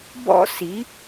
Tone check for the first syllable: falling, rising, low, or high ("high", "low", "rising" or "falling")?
high